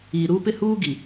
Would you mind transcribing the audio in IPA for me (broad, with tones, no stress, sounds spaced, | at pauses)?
iː˨ ɾ uː˦ p ɪ˦ h uː˦ ɡ i˨